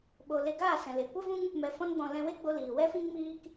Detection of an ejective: absent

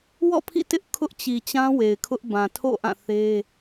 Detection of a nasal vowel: present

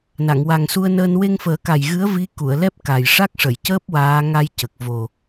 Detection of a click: absent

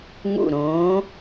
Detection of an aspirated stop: absent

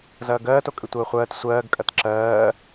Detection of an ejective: present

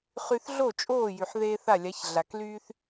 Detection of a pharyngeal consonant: present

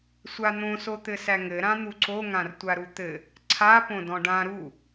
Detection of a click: present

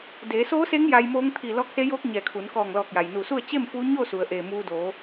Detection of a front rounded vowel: absent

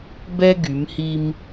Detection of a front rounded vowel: present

